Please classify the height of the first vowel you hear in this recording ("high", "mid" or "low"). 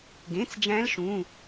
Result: mid